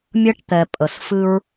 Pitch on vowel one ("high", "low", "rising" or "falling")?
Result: high